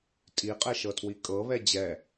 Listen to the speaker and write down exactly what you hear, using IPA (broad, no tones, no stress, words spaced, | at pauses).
tʼiqʼɛʃɤtʰwi kʼɤβɛ d͡ʑɛ